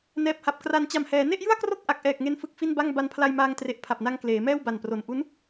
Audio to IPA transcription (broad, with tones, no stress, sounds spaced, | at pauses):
n ɛː˨˩ p̚ h a˨˩ p̚ k r a˩˦ n t͡ɕ a˨˩ m h ɛː˩˦ n e˥˩ ʔ j ɯ˥˩ a̯ k r o˥˩ k̚ ʔ a˨˩ k̚ ʔ ɛː˨˩ k̚ ŋ e˦˥ n f ɯ˨˩ k̚ f i˥˩ n b a˥˩ ŋ b a˧ n pʰ l a˧ j m aː˧ ŋ t r e˨˩ ʔ pʰ a˨˩ p̚ n a˧ ŋ k l eː˩˦ m ɛː˥˩ w b a˨˩ n p r o˨˩ n ʔ u˦˥ n